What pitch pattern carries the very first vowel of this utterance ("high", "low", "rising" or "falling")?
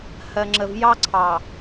low